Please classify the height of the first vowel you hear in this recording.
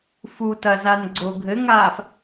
high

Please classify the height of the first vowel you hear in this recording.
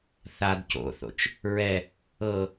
low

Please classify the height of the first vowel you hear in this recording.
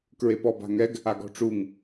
mid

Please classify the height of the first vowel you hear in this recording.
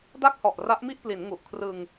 low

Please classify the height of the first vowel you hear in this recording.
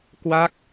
low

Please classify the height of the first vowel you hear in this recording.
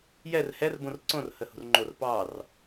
mid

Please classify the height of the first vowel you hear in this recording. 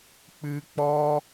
high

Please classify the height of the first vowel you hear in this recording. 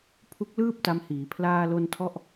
high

